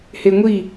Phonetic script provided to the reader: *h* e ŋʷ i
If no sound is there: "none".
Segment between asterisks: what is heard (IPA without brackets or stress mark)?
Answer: h